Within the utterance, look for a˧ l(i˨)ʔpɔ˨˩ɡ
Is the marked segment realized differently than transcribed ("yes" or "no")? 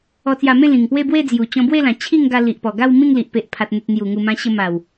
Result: no